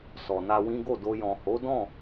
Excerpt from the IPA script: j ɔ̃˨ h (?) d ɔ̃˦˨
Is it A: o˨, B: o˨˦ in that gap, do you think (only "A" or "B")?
B